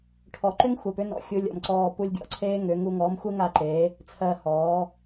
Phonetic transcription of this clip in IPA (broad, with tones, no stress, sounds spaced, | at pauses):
ʈʰ ɔ˨ ǃ ʏ˦ ŋ xʷ ɜ˨ p ʏ˦ n ɔ̰˨ xʲ u˧ lʲ ɔ̰˨ m ǀ ɔː˦˨ p u˧ lʲ ɡʲ ɔ̰˨ ǀʰ eː˦ ŋ ʏː˨˦ ŋ u˧ ŋ ɔː˨˦ m xʷ e˦ ŋ a˦˨ ǃ eː˨˦ | t͡sʰ ɜ˧ h ɔː˨˦